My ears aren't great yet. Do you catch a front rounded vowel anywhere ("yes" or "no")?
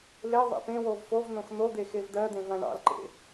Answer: no